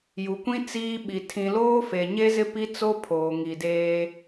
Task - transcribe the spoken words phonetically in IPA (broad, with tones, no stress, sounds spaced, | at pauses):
j u˨ kʷ ĩ˦ t͡s iː˦ ɓ i˨ tʰ ĩ˨ l oː˦ f e˨ ɲ e˦ z ɪ˦ p i˦ t͡s o˦ pʰ oː˨ ŋ i˨ d eː˦